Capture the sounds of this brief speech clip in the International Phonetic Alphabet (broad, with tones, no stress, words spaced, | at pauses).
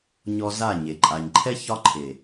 ɲɔ˦ za˦˨ɲe˨ ǃʼa˨ɲǃʰɛ˦ çɒ˦ǃʰe˨